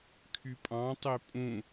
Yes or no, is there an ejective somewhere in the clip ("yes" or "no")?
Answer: yes